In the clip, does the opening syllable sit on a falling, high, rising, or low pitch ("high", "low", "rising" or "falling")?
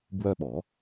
high